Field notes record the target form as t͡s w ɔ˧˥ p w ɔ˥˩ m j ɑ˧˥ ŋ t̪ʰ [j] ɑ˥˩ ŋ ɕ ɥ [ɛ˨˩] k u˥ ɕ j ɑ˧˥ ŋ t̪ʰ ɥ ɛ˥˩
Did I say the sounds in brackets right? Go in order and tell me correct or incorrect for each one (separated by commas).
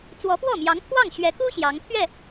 incorrect, incorrect